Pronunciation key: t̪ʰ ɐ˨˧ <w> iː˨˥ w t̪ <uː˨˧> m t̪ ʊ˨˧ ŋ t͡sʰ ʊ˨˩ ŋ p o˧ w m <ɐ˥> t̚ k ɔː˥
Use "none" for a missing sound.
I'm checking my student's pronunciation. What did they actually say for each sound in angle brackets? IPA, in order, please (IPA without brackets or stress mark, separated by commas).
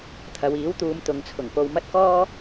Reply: w, uː˨˧, ɐ˥